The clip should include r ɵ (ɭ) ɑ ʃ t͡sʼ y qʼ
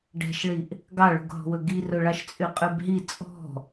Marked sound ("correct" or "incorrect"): correct